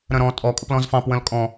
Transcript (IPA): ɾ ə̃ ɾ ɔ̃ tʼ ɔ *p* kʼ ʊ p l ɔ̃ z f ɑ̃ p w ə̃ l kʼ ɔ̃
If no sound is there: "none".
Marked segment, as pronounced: none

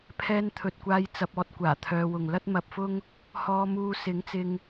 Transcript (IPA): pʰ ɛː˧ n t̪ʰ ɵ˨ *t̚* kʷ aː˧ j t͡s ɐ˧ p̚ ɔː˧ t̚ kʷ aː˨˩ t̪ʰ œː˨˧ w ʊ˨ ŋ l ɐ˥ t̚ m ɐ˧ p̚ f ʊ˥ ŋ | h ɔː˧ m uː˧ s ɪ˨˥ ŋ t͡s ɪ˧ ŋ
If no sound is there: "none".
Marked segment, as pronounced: t̚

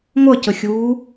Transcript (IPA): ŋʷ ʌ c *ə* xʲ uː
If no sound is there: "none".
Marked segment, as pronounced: ə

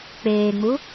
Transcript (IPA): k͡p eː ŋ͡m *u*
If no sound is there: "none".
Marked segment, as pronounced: u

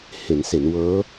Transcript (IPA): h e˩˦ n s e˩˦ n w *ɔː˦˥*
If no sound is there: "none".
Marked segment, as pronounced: ɤː˦˥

